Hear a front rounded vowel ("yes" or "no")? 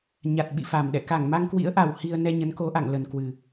no